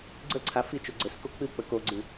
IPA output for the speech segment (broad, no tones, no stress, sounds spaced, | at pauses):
ɡ͡ǀ ə ǀʰ a f i t͡ʃ o ɡ͡ǀ ɘ s k o k͡p ɨ k͡p ə k o ɡ͡ǀ ɨ